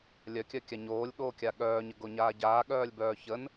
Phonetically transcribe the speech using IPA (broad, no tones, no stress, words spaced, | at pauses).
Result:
lʲœkʲœkʲa ɲoːlʲɠoːkʲa ɠœːɲəɡoɲaː ɟaːɠœːlʲbœː çən